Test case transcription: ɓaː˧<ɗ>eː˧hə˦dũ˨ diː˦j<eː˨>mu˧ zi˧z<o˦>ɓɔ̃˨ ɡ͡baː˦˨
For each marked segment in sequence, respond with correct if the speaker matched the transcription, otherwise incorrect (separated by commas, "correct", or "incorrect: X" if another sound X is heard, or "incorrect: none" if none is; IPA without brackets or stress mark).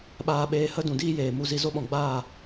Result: incorrect: ɓ, correct, correct